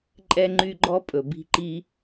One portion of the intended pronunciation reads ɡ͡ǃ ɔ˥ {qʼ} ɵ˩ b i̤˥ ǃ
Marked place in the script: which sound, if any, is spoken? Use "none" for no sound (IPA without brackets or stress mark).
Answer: pʼ